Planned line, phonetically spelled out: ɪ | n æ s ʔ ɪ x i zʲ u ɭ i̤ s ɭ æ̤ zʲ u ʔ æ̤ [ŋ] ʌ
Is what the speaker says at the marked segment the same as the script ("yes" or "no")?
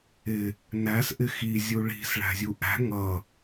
yes